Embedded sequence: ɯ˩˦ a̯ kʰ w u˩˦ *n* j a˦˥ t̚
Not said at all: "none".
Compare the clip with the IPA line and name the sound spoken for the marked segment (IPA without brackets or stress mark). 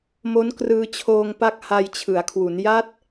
n